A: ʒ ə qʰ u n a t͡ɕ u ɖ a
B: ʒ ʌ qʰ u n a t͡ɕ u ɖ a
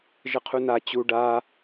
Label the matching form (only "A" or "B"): A